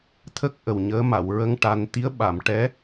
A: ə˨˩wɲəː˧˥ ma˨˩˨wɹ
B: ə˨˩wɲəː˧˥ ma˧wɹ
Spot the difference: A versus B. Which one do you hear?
A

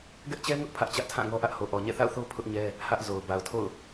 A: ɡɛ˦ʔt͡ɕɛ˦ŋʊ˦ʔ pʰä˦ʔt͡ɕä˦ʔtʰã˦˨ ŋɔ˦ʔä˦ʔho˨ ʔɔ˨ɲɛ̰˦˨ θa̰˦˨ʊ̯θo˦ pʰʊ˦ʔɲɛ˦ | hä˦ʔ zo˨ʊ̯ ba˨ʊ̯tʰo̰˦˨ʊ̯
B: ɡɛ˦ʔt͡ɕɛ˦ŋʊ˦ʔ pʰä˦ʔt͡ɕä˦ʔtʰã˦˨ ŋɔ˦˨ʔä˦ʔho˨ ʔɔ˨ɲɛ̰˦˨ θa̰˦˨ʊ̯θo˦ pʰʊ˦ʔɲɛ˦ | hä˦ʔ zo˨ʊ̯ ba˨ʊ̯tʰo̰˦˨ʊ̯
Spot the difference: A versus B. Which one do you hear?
A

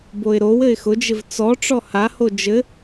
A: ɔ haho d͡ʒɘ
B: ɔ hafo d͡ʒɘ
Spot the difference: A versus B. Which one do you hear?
A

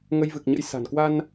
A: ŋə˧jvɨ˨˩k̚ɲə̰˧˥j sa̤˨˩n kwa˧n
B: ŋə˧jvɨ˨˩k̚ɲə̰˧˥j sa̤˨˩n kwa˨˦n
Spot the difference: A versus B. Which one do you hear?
A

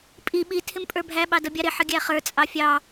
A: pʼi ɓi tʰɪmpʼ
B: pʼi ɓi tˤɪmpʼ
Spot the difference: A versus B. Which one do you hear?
A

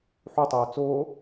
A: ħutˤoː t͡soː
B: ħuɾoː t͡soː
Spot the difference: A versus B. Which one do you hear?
A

